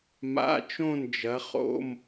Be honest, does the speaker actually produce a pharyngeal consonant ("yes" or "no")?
no